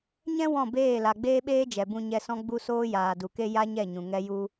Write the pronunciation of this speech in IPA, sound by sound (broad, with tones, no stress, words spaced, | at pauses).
ɲɛ̃˦ wɔ̃˦˨beː˦˨la˨ ɡ͡beː˦ɓeː˦ d͡ʒɛ˨bũ˧ɲɛ˧sɔ̃˦ ɡ͡bu˦soː˦ jaː˨du˨ke˦ ja˦ɲɛ˦˨ ɲũ˨ŋɛ˦ ju˦